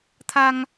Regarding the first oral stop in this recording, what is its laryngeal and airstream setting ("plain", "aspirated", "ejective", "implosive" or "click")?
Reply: aspirated